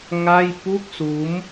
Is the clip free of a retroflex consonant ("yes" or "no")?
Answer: yes